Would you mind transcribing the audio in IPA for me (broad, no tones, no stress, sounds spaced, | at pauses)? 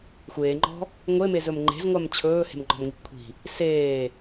xʷ eː ŋ͡ǃ ɔ̤ | ŋʷ e m e z ɵ m ŋ͡ǃ e̤ z ŋʷ a m t͡ɕʰ ɵː h e̤ m ŋ͡ǃ ɔ̤ m ŋ i̤ kʷʰ i̤ | s eː